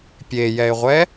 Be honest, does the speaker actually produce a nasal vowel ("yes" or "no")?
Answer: no